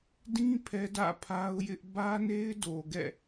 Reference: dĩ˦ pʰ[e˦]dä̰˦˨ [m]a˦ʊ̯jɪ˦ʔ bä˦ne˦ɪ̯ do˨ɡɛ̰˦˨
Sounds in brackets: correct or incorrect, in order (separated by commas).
incorrect, incorrect